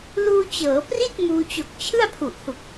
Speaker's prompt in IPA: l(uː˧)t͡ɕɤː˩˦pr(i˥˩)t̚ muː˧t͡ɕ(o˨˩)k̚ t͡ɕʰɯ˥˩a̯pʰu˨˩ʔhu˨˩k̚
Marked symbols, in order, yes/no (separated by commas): yes, yes, yes